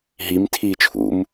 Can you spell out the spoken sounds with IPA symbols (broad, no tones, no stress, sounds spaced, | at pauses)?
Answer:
ɦ i m tʰ iː t͡ʃʰ ṵ m